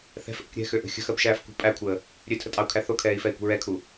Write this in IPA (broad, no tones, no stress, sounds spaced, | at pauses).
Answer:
θ ɛ̤ f ʔ ə̤ k ɾʲ ɛ̤ x ø ʔ ə̤ xʲ ə̤ x ɜ b ʃ æː f k ṳ pʼ æ kʷʰ əː | ɾʲ ø tʰ ə tʼ ɑ u̯ kʰ æ θ o kʰ ɛː i̯ f ɛ i̯ kʷ ə̤ ɹ ɛ kʰ u